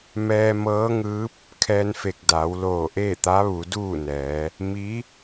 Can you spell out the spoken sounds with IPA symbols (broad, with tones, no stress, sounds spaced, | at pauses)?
m ɛː˧ m ɤː˧˥ ŋ ɯː˧˥ p̚ | kʰ ɛː˧ n f e˧˩ k̚ d a˩˧ w l oː˧˩ ʔ eː˥˨ t̪ a˧˥ ʋ u˩˧ d uː˥˨ n ɛː˩˧ | m i˧˥